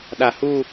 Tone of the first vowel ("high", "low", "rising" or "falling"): low